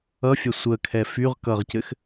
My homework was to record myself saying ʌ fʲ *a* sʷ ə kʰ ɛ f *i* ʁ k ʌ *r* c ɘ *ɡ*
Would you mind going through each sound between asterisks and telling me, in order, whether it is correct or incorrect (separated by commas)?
correct, incorrect, incorrect, incorrect